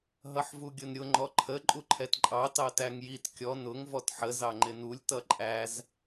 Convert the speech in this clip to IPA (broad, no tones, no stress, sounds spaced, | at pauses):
ɦ ʌ ħ v u ɡʲ ʊ n ɾʲ ʊ ŋ͡ǃ ɔ ǃʰ ə ǃʼ u ǃʰ ɛ t ǃʼ ɑ t ɑ t æ ŋ j i t kʲ ɔ n ʊ ŋ v ɔ t ħ ə z ɑ ŋ͡ǃ ɪ n u lʲ t ʌ ǃʼ æ z